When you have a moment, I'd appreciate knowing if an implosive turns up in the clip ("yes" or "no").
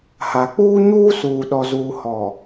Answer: yes